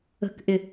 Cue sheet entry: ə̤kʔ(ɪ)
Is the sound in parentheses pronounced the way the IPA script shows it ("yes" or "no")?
yes